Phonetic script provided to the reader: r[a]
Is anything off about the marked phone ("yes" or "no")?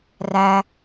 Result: yes